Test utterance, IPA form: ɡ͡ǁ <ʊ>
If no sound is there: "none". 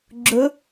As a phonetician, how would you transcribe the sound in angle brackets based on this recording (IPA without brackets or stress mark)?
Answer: ʊ